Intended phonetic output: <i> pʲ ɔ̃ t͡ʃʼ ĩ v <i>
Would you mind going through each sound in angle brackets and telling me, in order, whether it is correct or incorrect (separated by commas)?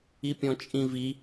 correct, correct